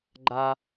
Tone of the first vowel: low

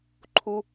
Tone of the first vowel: high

